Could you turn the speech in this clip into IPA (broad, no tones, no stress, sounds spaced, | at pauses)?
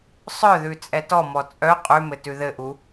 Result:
sˤ œ ð ʉ t͡sʼ ɛ t ɔ m ɔ t͡sʼ œ qʼ ʉ m ɘ t ʉ ð ɘ ʔ u